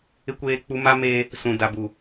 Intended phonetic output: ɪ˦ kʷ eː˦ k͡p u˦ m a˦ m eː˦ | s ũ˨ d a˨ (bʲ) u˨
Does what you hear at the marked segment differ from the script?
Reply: yes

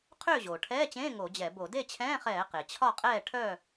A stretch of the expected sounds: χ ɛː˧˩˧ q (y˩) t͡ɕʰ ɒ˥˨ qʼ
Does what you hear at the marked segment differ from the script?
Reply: yes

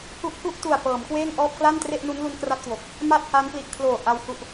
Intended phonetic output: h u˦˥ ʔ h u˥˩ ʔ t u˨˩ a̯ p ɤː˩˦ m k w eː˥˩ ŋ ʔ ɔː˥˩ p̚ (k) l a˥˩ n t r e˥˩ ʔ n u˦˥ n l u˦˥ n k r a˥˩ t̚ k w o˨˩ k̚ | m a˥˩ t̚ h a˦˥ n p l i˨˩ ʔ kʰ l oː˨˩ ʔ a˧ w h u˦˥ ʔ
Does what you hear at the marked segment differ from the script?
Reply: no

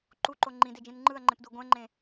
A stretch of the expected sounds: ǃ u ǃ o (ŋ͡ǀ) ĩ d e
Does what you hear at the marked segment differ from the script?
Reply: yes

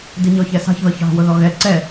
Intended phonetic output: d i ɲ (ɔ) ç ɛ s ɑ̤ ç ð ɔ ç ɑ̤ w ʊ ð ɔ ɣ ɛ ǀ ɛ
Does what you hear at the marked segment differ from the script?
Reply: no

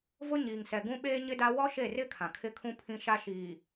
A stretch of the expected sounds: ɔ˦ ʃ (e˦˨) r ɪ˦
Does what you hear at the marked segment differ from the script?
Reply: no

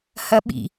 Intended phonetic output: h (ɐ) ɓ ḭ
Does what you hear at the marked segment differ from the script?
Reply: no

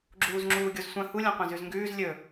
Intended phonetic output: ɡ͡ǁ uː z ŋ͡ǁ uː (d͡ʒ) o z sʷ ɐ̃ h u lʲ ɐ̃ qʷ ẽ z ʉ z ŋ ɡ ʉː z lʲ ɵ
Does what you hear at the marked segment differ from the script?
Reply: yes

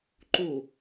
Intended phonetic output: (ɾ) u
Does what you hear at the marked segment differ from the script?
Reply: yes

